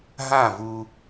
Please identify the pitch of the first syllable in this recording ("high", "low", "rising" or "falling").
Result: falling